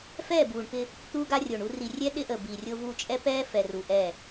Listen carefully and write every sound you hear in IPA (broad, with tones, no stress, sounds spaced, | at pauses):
f ɛː˦˨ b uː˨ ɳ p ɪ˦ | t̪ uː˦ ɡ a˦ rʲ o˨ ɳ u˦ r i˨ rʲ ɛ˦ ɗ ɪ˦ ʔ əː˨ b iː˨ rʲ o˦ v uː˦ t͡ʃʼ ɛ˦ p ɛː˦ f ɛ˨ r u˨ ʔ ɛː˦˨